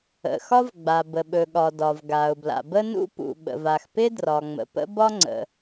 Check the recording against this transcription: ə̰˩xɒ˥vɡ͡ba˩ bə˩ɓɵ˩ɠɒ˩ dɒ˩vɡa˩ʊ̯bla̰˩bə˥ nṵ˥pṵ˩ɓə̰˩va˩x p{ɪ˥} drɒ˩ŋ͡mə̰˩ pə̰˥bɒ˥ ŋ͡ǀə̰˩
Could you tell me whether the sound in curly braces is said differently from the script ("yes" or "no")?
no